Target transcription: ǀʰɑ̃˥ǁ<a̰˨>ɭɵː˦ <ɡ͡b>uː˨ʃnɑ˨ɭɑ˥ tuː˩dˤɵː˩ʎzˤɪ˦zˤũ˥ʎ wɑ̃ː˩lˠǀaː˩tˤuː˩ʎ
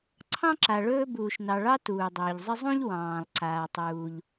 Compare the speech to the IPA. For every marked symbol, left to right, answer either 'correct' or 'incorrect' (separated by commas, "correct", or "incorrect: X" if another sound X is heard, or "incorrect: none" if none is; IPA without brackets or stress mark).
incorrect: a˨, incorrect: b